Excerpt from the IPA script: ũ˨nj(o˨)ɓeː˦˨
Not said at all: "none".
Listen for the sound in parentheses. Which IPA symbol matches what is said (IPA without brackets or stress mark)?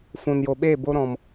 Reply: o˨